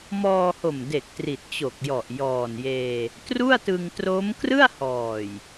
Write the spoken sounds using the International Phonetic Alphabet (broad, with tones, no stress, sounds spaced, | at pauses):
m ɔː˧ h o˨˩ m d e˨˩ k̚ t r i˨˩ t̚ t͡ɕ o˨˩ k̚ j ɔ˨˩ ʔ j ɔː˨˩ n j eː˧ | t r u˥˩ a̯ t ɯ˧ ŋ t r o˦˥ m k r ɯ˥˩ a̯ h ɔː˨˩ j